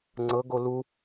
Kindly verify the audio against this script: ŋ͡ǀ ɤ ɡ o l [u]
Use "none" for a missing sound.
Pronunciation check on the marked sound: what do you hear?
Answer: u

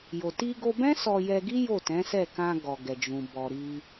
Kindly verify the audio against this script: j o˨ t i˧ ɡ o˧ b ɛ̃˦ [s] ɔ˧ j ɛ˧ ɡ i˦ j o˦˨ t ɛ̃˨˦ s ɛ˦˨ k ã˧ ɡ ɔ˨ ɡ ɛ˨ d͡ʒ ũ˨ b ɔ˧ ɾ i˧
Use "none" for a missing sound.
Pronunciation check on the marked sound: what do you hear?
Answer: s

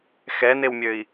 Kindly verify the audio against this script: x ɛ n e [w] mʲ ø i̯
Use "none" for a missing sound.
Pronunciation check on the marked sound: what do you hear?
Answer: w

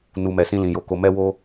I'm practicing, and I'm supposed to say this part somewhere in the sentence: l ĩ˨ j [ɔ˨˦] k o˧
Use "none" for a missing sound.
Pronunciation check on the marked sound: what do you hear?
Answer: o˨˦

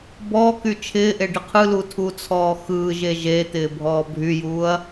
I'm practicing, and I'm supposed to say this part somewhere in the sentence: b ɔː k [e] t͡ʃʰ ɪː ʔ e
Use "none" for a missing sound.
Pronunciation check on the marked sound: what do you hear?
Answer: y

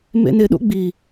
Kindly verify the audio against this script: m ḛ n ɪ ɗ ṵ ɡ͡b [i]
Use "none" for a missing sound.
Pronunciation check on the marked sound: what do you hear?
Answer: i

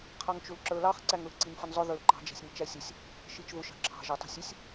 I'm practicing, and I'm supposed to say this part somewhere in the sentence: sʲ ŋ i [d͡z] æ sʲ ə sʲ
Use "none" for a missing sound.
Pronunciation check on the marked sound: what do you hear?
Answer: t͡ʃ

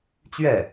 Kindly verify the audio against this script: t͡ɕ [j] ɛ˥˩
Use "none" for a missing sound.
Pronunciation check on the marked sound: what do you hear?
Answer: ɥ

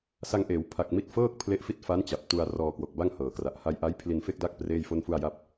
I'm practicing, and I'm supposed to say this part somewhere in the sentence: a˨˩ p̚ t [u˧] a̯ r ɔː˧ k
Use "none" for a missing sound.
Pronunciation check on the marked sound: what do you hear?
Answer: u˧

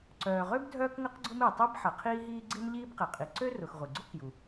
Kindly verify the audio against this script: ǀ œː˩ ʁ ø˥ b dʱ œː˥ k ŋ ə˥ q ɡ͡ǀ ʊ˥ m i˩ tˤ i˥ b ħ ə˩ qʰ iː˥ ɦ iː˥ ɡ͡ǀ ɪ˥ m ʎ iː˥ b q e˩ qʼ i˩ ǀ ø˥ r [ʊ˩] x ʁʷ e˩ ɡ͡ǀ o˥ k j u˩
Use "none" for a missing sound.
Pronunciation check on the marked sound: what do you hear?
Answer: ʊ˩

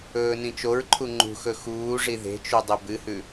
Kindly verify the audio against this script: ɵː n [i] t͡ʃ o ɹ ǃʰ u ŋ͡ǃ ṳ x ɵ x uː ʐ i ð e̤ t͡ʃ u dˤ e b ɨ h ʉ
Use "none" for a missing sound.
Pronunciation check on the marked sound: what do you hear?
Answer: ĩ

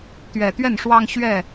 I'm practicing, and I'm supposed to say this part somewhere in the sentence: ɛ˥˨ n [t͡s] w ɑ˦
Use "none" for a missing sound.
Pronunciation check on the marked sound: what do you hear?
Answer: ʂ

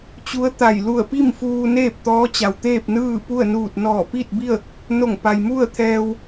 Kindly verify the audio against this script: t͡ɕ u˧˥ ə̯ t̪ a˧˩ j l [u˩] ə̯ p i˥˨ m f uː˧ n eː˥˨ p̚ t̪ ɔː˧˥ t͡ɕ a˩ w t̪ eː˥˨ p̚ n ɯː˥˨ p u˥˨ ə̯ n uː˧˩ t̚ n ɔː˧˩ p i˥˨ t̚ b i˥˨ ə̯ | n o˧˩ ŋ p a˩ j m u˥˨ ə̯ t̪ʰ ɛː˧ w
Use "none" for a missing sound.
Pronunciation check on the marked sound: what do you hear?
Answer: u˧˩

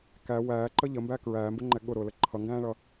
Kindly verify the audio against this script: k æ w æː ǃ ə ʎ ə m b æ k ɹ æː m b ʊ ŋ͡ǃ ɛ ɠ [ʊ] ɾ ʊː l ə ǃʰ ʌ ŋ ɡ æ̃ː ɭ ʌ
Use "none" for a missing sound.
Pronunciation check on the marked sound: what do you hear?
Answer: ʊ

